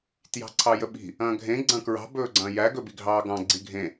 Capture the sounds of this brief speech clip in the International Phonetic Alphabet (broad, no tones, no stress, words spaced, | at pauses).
tjɑ̤ǀʰɑjəɓi̤ | ɐ̃ːɡʱẽ ɡ͡ǀɐ̃kɹɑ̤ bɵːɡ͡ǀɐ̃ːjæ ɡɵbiɡʱɑːɡɑ̃ ɡ͡ǀiɡʱẽ